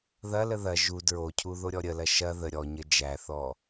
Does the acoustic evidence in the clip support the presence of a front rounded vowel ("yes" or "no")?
no